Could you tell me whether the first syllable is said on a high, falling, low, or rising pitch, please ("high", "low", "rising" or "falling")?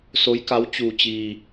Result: rising